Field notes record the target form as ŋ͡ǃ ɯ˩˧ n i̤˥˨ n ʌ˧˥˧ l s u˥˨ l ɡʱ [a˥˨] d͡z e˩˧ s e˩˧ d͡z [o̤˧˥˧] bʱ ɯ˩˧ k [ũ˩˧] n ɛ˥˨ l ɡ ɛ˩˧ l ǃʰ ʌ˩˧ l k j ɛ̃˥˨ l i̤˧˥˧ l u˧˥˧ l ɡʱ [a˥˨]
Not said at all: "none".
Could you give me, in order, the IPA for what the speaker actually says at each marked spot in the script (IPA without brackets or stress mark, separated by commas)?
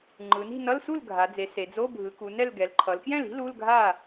a˩˧, o˧˥˧, u˩˧, a˥˨